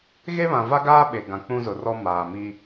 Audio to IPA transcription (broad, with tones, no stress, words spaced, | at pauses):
ɣe˦βã˨va˦ɡaː˦ ɓe˨ ɡã˨k͡pũ˦zʊ˨rɔ˦ maː˨mi˦